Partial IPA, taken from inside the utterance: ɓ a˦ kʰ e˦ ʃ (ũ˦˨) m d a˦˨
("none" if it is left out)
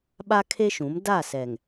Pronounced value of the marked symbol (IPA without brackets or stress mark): ũ˨˦